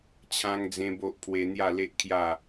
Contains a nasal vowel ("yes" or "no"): yes